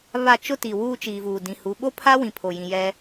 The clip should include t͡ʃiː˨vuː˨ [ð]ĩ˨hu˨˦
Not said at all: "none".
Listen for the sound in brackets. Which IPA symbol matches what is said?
d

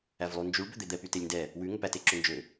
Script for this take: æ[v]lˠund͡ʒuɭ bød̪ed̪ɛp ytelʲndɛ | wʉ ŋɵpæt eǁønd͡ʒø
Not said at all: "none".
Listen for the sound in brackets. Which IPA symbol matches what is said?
v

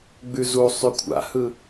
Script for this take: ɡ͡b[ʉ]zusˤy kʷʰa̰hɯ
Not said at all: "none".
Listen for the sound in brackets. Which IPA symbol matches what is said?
ʉ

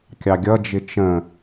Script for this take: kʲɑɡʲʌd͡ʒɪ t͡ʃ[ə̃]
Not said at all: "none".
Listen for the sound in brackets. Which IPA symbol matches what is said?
ə̃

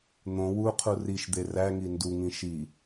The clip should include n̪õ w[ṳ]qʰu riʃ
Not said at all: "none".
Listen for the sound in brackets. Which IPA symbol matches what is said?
u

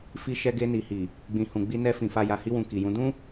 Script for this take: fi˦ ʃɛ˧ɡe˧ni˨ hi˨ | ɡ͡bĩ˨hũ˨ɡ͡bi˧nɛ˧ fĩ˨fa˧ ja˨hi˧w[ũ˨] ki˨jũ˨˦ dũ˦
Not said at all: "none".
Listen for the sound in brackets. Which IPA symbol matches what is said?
ũ˨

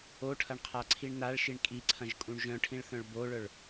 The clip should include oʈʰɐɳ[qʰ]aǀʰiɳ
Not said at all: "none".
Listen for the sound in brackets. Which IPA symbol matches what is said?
qʰ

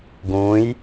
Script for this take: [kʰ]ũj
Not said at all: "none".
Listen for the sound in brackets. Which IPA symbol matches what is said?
ɡ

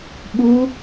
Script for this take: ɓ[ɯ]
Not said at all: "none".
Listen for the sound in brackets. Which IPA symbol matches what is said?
u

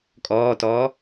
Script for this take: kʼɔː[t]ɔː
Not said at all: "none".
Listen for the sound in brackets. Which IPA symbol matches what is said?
t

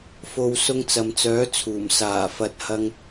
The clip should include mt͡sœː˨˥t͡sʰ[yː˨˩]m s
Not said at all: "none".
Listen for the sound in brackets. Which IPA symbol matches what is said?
uː˨˩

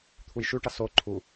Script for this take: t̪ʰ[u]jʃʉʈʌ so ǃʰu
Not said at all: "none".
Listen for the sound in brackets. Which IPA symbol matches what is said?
u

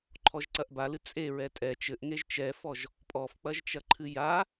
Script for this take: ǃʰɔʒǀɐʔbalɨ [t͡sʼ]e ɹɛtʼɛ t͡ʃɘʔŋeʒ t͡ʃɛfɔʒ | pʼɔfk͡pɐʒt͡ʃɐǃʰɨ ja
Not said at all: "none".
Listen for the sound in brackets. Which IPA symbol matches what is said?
t͡sʼ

